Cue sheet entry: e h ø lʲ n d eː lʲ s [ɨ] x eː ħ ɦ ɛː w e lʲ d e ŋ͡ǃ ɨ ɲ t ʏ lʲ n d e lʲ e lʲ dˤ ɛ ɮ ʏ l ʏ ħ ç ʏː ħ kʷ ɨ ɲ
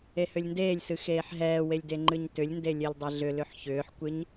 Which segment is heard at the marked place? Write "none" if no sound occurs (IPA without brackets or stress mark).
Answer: ɨ